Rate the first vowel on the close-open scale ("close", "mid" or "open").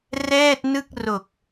mid